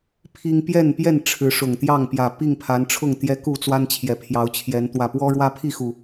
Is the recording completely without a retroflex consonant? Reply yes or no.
no